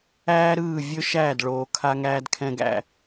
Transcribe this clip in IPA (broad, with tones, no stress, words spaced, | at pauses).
æː˥ɾɯː˥˩ vʲɵ˥ʃæː˥˩dɭoː˩kʰa˧ ŋæː˧dkʰɛ̃˧ɡæ̰˥˩